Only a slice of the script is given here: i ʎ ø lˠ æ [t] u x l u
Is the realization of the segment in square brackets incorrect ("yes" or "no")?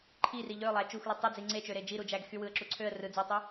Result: yes